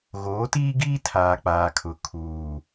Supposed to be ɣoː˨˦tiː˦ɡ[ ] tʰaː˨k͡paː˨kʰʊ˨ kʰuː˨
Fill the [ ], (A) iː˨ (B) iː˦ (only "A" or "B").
B